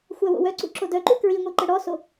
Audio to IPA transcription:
xʷawo̰wœǀṵ ǁodœǃu kɹiŋʷi ǃəɽɔso

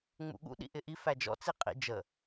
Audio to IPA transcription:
ŋ͡mṵɠṵ ɗḭʔɪʔi fæd͡ʒɔ̰ t͡siqʼḭ d͡ʒə

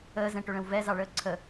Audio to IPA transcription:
əːzɛ̃ʈɵɭə̃w vɛzɑɭəː ǀʰə

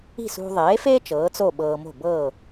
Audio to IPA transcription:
i̤˥˩sṳ˧ ðˤeː˩˥feː˥t͡ʃ ɤː˩˥t͡so˥˩ ɓɤː˧mo̤˥˩ bɤː˥˩

